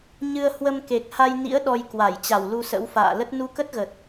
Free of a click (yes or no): yes